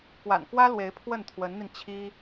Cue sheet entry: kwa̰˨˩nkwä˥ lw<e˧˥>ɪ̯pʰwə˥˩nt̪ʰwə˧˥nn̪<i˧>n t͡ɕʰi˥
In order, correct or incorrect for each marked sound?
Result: correct, correct

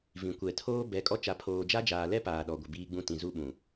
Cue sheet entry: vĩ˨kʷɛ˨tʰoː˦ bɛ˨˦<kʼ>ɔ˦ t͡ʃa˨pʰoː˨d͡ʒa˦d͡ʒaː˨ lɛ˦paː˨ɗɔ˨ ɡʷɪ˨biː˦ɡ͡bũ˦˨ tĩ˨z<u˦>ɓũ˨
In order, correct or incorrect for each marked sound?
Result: correct, correct

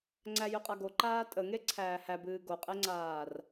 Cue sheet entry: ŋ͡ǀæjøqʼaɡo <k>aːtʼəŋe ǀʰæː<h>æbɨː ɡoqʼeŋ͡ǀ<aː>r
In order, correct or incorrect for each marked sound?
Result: incorrect: ǃ, correct, correct

